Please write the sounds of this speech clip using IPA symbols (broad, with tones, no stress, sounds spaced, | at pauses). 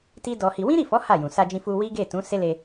t i˦ d ɔ˧ h i˧ w ĩ˦ ɾ i˦˨ f ɔ˨˦ h a˦˨ j ũ˨ s a˧ d͡ʒ ĩ˧ f u˧ w i˦ ɡ e˦˨ t ũ˨˦ s e˦ l e˧